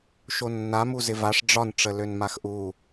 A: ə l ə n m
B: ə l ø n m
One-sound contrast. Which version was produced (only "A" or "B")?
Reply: B